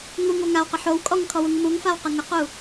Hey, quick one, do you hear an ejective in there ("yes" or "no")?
yes